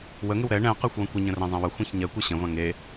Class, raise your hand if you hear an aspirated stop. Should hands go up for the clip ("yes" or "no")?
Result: no